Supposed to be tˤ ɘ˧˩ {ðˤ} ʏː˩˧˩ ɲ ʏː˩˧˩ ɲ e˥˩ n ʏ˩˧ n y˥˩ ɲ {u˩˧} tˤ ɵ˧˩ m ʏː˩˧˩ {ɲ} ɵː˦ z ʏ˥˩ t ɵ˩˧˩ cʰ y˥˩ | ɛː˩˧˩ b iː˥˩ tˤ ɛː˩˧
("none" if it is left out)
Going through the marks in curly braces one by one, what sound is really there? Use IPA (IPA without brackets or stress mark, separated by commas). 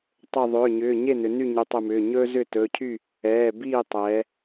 ðˤ, y˩˧, ɲ